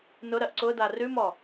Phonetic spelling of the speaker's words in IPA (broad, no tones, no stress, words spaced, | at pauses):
nʊɾɜʔ ǀʊda rʉmɔ